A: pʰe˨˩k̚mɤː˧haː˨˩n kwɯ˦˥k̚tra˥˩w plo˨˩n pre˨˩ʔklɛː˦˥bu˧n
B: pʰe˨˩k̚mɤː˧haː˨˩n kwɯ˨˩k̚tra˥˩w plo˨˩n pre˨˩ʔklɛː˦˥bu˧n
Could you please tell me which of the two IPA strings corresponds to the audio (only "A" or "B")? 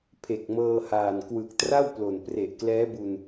B